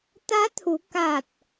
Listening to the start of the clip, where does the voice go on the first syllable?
rising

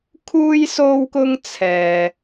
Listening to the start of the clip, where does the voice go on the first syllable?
high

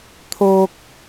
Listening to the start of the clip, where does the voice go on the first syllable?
high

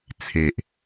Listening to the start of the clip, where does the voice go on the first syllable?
low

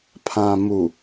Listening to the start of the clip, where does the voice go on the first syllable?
low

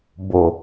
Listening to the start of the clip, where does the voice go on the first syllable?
low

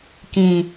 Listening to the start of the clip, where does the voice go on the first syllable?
low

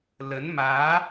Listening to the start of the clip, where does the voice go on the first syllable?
rising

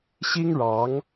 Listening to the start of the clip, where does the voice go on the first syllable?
high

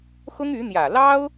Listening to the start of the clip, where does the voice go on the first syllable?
high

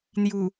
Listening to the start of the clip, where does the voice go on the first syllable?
low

